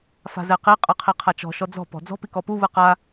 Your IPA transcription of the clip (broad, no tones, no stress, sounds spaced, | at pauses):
f a̤ z ɛ q i qʼ ɯ qʰ i qʰ a t͡ʃ ɔ̤ ʃ ɔ d͡z ɔ̤ p ɔ̤ d͡z ɔ̤ p i k ɔ p u β ɯ q a